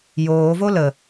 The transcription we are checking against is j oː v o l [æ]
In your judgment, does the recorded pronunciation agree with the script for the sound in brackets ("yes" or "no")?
no